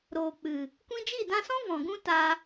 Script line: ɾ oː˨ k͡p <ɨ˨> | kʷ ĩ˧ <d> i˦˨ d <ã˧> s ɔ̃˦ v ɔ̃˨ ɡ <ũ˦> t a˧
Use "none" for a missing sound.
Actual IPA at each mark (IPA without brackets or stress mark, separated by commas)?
ɨ˨, d͡ʒ, ã˧, ũ˦